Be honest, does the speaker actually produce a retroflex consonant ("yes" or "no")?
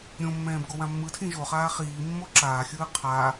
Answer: no